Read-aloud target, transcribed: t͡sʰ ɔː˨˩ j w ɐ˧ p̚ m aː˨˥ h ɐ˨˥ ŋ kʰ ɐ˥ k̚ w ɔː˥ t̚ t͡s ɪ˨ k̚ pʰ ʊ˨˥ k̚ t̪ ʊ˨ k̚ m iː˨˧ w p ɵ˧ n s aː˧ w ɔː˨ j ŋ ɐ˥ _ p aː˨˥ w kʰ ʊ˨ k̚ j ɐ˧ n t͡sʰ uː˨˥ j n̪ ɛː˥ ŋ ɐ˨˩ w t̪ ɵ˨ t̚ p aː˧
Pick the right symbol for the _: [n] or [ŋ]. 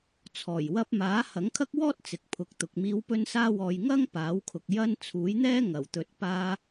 ŋ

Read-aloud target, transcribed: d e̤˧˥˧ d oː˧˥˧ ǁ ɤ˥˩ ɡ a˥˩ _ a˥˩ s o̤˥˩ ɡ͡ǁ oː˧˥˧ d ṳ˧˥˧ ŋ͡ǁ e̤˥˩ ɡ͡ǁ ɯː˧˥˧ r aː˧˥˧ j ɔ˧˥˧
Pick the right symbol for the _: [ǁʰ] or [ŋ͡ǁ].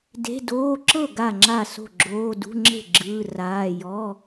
ŋ͡ǁ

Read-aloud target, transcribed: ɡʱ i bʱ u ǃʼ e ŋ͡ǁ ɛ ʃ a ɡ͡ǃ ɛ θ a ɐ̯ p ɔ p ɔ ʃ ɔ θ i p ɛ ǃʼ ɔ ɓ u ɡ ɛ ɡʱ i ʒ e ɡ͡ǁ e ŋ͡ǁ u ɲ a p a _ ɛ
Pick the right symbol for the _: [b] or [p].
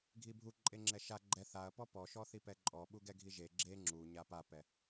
p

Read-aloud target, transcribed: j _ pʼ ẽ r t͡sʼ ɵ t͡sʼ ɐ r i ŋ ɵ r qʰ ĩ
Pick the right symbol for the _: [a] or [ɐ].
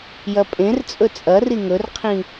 ɐ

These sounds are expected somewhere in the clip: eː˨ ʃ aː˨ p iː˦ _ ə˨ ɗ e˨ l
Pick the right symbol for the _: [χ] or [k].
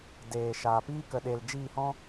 k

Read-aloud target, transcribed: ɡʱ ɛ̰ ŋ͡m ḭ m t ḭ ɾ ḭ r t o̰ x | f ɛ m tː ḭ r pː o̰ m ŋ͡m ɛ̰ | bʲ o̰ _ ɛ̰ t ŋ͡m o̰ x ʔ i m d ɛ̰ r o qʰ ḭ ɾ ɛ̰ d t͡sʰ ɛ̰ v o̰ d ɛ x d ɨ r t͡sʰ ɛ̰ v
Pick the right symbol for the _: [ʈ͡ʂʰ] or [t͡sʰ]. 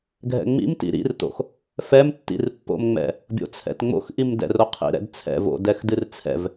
t͡sʰ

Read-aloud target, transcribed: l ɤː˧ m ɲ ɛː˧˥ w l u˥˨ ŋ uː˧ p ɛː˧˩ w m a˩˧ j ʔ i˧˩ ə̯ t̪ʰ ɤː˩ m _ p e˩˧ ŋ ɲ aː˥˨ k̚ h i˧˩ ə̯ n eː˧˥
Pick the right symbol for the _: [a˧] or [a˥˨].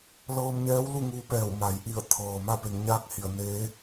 a˥˨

